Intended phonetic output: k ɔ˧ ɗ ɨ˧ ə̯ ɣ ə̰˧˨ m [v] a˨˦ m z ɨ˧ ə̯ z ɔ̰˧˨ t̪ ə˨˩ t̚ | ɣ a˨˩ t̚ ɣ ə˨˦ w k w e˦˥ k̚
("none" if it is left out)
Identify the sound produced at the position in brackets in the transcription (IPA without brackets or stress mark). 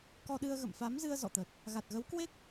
f